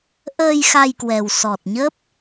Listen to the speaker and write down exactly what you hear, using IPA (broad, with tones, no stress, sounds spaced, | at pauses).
ʔ əː˧ j x a˧ j k w ɛ˨˩ w s ɔ˨˩ t̚ ɲ əː˦˥ p̚